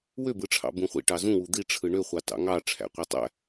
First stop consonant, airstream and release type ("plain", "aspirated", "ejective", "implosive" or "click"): plain